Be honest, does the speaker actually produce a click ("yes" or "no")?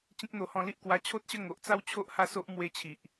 no